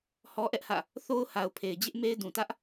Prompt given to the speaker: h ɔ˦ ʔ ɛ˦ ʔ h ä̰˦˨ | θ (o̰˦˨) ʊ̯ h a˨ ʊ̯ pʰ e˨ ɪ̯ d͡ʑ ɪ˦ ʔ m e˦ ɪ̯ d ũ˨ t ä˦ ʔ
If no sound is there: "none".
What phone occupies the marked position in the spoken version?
o˦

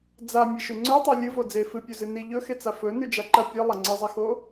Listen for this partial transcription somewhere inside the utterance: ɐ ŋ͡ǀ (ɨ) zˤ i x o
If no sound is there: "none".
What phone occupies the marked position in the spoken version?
ɨ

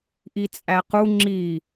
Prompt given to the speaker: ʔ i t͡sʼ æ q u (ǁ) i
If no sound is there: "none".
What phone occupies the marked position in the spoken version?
ŋ͡ǁ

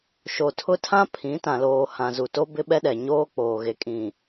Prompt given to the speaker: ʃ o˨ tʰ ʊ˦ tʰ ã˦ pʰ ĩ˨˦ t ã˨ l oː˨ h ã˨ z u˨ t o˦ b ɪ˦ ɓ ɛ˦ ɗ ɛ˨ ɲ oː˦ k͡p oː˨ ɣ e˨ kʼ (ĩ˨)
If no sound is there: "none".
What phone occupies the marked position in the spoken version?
ĩ˨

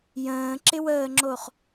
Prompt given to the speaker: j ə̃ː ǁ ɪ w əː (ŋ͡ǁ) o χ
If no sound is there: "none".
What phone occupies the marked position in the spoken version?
ŋ͡ǁ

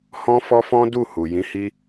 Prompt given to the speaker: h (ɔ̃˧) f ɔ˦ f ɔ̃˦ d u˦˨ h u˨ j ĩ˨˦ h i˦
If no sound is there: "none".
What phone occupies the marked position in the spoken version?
ɔ̃˦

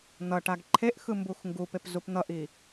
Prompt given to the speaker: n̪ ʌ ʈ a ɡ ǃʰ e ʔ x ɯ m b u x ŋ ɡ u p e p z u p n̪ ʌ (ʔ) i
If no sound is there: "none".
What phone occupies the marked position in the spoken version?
ʔ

